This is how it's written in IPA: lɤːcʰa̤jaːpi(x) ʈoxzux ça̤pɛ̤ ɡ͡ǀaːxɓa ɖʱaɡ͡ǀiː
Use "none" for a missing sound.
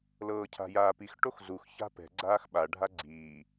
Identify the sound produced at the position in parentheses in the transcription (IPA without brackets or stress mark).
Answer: x